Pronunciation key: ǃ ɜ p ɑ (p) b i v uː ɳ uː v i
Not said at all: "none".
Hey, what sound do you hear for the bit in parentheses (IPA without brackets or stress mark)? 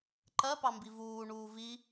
m